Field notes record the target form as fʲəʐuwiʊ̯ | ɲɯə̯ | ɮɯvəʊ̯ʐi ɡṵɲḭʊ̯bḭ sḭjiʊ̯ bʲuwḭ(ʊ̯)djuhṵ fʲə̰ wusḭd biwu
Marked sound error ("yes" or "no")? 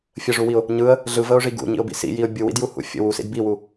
yes